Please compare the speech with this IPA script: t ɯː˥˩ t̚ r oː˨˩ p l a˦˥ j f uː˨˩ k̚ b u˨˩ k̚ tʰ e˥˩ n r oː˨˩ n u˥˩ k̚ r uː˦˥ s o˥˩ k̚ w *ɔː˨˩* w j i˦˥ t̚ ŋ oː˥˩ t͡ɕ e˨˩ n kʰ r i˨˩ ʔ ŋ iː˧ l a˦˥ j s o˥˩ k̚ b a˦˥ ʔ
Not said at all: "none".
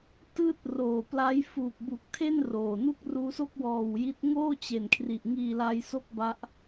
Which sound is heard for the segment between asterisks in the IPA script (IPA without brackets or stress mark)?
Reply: ɔː˨˩